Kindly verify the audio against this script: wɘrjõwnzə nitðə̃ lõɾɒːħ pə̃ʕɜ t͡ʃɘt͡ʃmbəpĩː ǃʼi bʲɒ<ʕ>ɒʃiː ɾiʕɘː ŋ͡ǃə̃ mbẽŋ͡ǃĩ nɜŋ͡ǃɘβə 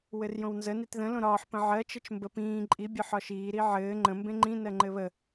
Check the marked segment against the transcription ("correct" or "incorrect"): incorrect